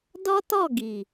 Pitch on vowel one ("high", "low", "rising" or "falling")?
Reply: high